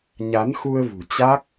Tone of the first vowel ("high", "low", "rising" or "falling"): rising